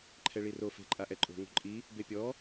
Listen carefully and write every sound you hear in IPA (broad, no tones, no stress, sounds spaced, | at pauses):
ǃʰ ɛ ɭ i r o f e̤ ǃʼ a ʔ ɛ ǃʼ o̤ ŋ o̤ ǃʼ i | b e pʲ ɔ